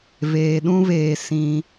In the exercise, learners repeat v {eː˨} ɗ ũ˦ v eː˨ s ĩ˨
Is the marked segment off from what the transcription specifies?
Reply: no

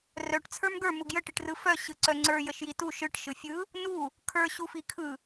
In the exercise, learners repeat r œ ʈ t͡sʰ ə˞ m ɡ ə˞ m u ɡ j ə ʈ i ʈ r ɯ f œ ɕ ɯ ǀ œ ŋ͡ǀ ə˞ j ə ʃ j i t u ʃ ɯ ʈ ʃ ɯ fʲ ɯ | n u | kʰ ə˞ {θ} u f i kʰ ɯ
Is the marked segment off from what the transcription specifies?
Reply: yes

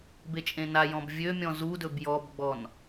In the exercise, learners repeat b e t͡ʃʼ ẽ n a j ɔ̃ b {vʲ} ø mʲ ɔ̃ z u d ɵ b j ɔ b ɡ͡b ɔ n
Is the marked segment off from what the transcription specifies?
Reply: no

